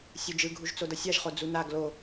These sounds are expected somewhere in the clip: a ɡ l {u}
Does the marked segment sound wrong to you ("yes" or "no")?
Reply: yes